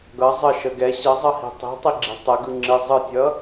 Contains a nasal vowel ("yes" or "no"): no